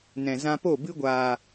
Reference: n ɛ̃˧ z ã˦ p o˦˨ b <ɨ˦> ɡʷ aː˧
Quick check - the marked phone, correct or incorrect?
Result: correct